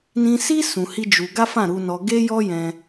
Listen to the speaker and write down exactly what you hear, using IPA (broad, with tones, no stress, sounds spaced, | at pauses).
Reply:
n ĩ˧ s i˦ s ũ˧ h i˦ d͡ʒ u˧ ɡ a˦ f ã˦˨ ɾ u˧ n ɔ˧ ɡ e˦ j ɔ˦ j ɛ̃˧